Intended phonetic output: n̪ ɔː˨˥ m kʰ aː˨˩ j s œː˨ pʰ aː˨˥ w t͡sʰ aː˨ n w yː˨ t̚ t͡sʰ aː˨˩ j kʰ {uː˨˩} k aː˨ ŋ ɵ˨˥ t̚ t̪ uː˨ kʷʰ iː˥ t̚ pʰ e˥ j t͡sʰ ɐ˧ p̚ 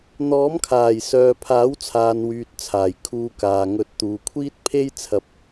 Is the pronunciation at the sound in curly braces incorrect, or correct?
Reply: incorrect